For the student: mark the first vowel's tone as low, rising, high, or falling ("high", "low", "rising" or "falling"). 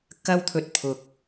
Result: high